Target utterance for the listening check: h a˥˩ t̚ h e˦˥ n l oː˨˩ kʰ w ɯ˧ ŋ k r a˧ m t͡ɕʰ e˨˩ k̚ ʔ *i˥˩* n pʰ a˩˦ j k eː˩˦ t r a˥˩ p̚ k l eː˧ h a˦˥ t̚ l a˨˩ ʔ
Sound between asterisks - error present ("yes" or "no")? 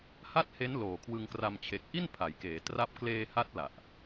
no